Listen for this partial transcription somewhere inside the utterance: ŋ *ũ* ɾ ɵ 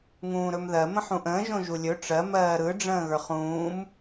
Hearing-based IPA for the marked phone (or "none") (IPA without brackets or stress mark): ũː